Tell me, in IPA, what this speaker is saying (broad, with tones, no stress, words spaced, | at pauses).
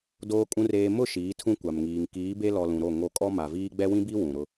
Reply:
doː˨kʼũ˨reː˨ mʊ˦˨ ʃiː˨˦tʰũ˦kʷa˨mŋiː˨ŋ kiː˨˦be˦lɔ˨ lũ˨ɾo˦˨ŋo˦˨ kʼɔ˦ma˨viː˦ ɡ͡bɛ˦wĩ˦bi˦ wũ˨ɾʊ˦